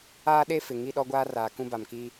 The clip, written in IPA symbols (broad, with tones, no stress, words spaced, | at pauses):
aː˦ɗe˦ fɪ˨ ŋi˦˨ɗɔ˦ɡʷaː˦ raː˨kũ˦ba˨mki˦